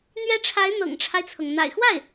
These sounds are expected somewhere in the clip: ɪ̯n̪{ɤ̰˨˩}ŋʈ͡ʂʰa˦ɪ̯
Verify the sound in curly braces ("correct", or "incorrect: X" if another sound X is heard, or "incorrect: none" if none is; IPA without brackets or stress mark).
correct